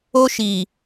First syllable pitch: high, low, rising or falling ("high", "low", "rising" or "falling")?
high